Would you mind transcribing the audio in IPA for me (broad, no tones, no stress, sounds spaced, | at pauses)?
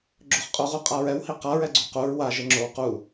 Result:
ɡ͡ǁ o χ qʼ o ʁ u qʼ a ɹ ɛ w h i q a ɹ ɛ ɡ͡ǀ u q u ɹ w a ʒ ɛ ŋ͡ǁ o w q u